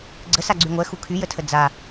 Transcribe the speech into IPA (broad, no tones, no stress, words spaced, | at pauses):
ɡ͡ǀəsaɡ͡ǀy ŋʷɛxu kʰyjətʰə d͡za